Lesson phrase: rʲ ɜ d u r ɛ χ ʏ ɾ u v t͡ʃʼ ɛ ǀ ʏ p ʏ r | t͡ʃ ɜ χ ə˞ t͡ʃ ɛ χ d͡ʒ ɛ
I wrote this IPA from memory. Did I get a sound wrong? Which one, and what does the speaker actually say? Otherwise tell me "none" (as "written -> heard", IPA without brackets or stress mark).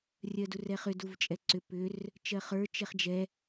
ɾ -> d